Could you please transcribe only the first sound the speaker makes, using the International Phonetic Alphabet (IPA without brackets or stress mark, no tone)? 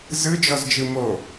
z